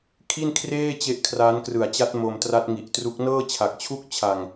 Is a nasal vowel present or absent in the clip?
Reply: absent